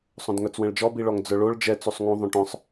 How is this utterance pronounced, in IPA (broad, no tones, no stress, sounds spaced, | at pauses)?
sˤ õ d ŋ œ t͡s w ɛ̃ ɭ d͡ʒ ɔ b i ɭ ɔ ŋ d͡z œ ɭ o ɭ d͡ʒ ɛ t͡s u sˤ ŋ ũ ðˤ õ ʈ œ̃ sˤ